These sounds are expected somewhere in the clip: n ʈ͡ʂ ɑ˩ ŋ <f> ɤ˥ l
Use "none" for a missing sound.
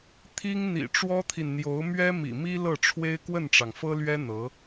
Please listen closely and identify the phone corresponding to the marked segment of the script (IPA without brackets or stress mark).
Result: f